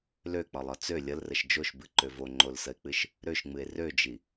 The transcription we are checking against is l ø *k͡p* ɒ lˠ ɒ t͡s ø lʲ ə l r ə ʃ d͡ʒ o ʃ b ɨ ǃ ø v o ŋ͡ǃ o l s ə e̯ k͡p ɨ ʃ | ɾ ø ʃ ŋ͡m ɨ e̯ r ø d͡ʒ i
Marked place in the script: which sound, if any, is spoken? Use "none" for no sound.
k͡p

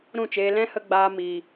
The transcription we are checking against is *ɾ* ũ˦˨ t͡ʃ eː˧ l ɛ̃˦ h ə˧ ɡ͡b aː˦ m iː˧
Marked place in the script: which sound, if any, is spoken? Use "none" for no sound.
ɾ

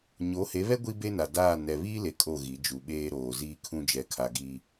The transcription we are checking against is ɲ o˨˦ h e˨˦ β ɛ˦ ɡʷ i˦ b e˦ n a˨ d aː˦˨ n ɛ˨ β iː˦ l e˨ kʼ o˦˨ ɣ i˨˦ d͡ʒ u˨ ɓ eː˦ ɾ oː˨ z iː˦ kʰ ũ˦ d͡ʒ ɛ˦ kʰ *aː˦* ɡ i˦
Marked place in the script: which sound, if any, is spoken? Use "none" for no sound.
a˦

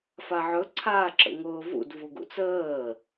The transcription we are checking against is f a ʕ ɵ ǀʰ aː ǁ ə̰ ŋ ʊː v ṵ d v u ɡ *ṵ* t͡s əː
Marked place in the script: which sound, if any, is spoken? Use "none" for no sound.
ṵ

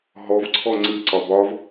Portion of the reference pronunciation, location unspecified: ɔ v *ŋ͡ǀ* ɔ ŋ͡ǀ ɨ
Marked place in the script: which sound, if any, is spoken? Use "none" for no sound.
ǀʰ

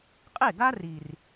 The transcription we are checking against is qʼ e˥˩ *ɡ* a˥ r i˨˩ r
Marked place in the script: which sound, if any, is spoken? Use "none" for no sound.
ɡ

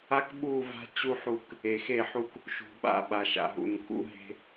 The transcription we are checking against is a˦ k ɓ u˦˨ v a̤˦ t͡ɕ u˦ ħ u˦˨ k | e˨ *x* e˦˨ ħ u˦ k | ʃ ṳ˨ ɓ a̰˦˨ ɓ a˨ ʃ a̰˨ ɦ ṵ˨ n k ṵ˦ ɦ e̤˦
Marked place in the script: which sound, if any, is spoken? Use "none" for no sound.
x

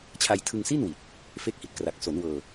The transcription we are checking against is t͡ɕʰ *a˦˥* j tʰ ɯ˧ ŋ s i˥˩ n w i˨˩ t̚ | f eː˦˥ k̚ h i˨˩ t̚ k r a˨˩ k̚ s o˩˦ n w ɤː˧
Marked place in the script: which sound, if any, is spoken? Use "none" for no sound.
a˧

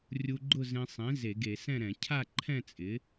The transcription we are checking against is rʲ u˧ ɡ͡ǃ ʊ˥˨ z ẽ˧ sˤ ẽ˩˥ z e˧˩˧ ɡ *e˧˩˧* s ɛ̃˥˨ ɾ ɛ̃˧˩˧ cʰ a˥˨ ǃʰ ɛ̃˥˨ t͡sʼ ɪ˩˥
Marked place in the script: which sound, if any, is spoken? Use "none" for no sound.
e˧˩˧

